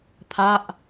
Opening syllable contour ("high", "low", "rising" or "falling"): falling